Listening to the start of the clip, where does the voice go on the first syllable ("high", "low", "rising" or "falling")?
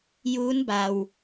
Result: rising